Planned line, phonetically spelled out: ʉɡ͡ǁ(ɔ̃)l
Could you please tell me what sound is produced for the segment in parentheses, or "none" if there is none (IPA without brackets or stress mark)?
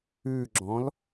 ɔ̃